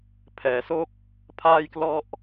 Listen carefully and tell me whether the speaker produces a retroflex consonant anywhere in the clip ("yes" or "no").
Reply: no